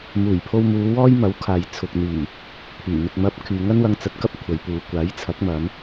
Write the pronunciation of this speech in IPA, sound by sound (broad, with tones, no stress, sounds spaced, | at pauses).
m uː˨˩ j pʰ o˧ w m uː˨˧ w ɔː˥ j m ɐ˨˥ w kʰ aː˨ j t͡sʰ ʊ˨ k̚ n̪ iː˨˩ | pʰ yː˨˩ m ɪ˧ k̚ m ɐ˥ p̚ kʰ yː˧ ŋ ɐ˥ n w ɐ˧ ŋ t͡s ɐ˨˥ t̚ k ɐ˥ p̚ kʷʰ ɐ˨˥ j p uː˨˧ kʷ aː˨˥ j t͡sʰ ɐ˨˥ k̚ m ɐ˨˧ m